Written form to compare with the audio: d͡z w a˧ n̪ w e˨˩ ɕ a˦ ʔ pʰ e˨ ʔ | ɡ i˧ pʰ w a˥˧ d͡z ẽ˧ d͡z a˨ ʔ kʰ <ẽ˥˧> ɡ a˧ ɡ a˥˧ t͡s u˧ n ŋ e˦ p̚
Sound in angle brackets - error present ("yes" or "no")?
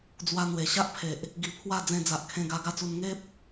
yes